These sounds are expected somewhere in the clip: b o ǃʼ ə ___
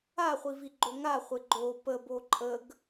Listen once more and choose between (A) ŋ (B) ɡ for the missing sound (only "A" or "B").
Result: B